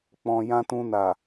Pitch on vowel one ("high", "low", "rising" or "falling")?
low